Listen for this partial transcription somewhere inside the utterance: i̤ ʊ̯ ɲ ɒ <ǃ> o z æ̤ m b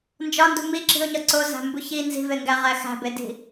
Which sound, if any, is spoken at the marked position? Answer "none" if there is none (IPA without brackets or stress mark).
ǀ